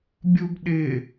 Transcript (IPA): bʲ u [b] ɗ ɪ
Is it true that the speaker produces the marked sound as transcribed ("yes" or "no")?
yes